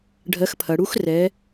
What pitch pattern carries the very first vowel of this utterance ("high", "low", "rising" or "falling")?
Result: rising